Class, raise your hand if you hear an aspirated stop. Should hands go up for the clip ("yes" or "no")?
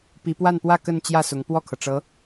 yes